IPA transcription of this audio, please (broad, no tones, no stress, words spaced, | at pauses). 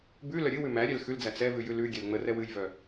bʉlœ ɾʲɨwʉ mæ ɾʲɛlxʉld͡zæ t͡sɛvʉ jʉlʉɡʲɛl ŋ͡mərɛw ɨjvœ